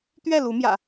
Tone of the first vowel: falling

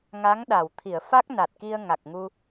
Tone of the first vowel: rising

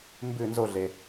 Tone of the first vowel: falling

